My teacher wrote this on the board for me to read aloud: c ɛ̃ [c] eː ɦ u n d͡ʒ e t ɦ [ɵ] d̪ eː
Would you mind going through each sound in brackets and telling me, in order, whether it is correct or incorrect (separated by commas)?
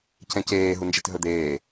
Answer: correct, correct